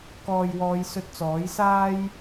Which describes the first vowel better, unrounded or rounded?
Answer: rounded